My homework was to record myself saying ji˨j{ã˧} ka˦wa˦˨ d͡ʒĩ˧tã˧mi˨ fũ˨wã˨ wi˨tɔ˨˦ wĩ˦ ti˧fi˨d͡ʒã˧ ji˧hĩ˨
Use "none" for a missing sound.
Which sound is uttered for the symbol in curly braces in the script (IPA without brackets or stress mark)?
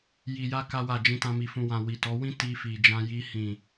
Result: a˧